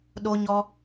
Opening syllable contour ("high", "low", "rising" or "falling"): high